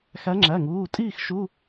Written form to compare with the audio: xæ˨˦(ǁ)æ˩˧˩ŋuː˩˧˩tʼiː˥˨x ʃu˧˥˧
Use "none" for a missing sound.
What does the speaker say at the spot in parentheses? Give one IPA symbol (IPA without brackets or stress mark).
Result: ŋ͡ǁ